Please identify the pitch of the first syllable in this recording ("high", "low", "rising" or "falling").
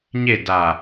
falling